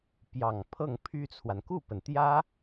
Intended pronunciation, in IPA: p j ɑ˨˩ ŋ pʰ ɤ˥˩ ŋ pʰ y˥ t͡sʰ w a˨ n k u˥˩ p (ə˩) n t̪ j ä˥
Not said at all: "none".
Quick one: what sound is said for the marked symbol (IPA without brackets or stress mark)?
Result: ə˩